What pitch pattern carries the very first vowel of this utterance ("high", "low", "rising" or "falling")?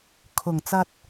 low